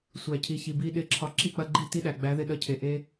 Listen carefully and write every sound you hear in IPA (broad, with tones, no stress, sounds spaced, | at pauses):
sʷ æ˨ cʰ i˨ ç i˨ b i˧ ɗ ɪ˦˨ ǁʰ ɒ˧ ǁ i˦˨ k͡p ɐ˧ ɡ͡ǃ i˦˨ t i˦ ɗ æ˨ ɡ͡b æ˨˦ ð ɪ˧ ɗ ɐ˧ cʰ e˨ ʔ e˦